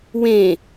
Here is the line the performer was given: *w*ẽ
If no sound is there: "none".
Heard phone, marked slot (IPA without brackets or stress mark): w